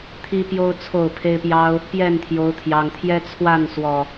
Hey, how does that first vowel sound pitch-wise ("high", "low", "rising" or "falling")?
high